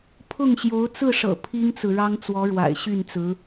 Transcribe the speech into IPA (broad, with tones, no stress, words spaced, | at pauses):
pʰʊ˥˩ŋɕjo˧˥ʊ̯ t͡sɹ̩˥˩ʂɤ̰˨˩ pʰi˥ŋt͡sɹ̩˨ɻɑ˥ŋ t͡swɔ˧˥ɻwa̰˨˩ɪ̯ɕy˥˩nt͡sɹ̩˧˥